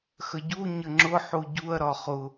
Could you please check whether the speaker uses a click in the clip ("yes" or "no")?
yes